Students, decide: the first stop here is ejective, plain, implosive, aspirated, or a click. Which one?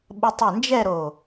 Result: implosive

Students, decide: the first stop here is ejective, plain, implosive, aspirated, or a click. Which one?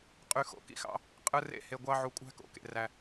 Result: ejective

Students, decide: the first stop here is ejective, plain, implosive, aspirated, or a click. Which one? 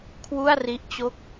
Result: aspirated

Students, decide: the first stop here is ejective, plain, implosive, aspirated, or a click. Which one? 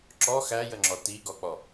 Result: click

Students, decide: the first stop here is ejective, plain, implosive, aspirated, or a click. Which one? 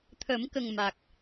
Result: aspirated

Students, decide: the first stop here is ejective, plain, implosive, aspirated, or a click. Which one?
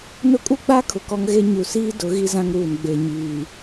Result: ejective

